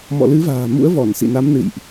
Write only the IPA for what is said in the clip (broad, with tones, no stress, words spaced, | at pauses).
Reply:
mɔ̰˧˨lɨ˨˦va̤ː˨˩mṵ˧˥ə̯ vɔ˧˩nsḭ˧˨na˨˦m nɨ̰˧˨jʔ